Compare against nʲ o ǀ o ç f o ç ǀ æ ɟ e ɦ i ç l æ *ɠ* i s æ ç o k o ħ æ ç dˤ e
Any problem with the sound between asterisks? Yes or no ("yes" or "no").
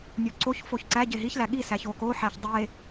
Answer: no